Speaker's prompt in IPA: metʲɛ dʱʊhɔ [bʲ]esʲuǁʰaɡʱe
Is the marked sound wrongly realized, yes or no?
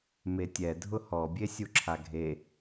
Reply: no